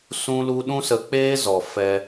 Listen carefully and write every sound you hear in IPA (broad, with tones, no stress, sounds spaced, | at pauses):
s ũ˦ l u˦ ɗ ũ˦ s ə˧ k͡p eː˦ z ɔ˨ f ɛ˧